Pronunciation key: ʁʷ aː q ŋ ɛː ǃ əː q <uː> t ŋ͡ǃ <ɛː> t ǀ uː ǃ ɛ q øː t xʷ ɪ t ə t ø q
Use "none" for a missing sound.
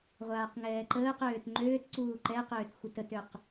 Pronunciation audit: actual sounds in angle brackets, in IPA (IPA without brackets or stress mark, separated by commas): øː, øː